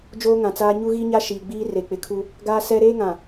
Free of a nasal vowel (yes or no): no